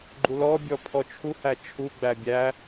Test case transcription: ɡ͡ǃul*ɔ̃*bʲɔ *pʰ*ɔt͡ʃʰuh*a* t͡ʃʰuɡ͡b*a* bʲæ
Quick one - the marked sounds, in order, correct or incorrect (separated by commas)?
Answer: incorrect, correct, incorrect, incorrect